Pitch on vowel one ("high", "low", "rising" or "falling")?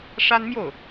high